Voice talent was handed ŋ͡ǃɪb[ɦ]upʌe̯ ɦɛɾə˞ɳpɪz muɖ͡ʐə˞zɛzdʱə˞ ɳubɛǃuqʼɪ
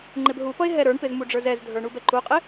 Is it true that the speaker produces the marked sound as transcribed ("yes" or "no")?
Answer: yes